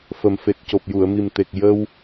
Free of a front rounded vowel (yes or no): yes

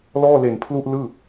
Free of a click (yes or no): yes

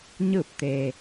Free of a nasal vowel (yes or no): yes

